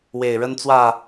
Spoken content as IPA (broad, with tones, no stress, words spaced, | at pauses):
we˨˩ɪ̯ɻə˦nt͡swä˥˨